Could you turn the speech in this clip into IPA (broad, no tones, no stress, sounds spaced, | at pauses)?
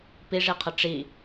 p i ʐ i qʰ ə ʈ͡ʂ i